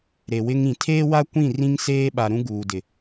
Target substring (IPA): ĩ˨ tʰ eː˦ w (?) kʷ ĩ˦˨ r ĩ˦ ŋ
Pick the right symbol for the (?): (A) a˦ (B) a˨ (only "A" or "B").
A